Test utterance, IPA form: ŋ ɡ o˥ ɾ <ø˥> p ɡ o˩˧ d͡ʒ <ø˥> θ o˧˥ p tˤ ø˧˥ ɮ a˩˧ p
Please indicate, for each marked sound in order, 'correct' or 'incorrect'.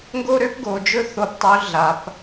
correct, incorrect

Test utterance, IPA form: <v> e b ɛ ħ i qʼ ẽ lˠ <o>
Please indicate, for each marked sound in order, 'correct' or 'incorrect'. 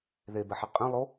incorrect, correct

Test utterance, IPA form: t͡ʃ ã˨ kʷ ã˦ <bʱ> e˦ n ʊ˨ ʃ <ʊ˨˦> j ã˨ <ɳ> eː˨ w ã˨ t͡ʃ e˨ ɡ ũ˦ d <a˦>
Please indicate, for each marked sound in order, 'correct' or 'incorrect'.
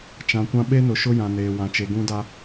incorrect, incorrect, incorrect, correct

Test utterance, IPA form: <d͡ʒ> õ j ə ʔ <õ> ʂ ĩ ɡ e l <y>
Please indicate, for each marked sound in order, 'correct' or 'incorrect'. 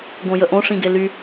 incorrect, correct, correct

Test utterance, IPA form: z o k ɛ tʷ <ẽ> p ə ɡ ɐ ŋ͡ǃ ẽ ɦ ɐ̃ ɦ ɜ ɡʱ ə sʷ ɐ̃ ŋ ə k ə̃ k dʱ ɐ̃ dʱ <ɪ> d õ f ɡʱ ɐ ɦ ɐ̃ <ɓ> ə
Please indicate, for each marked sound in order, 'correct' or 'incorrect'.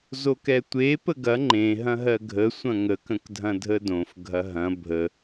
incorrect, incorrect, incorrect

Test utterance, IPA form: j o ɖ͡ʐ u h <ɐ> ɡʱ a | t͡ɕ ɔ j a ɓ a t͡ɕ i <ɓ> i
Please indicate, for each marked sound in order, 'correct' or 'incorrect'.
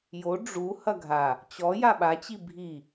correct, incorrect

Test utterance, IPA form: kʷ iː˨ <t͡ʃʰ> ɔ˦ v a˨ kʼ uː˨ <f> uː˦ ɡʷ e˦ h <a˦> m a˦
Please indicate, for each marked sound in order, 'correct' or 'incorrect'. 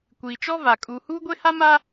incorrect, incorrect, correct

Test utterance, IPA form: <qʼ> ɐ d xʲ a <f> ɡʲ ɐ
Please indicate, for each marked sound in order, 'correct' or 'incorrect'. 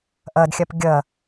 incorrect, incorrect

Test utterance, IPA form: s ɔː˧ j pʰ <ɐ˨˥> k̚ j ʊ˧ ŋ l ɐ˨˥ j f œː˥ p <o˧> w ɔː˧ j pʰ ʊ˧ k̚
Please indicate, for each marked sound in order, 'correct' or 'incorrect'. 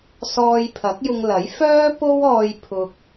correct, incorrect

